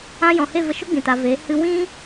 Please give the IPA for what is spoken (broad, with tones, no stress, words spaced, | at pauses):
ã˧ jɔ̃˨he˦˨və˧ʃo˦ ɡ͡bĩ˨ta˨veː˨˦ hɨ˧ wĩ˦